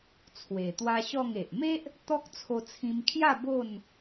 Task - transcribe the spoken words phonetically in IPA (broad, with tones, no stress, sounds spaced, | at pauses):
t͡sʰ w e˨˩ t̪ w a˦ ɕ ɔ˥˧ ŋ e˨ ʔ m e˦ ʔ | t̪ ɔ˦ k̚ t͡sʰ o˧ t͡sʰ ĩ˧ m kʰ j a˥˧ b o˥˧ n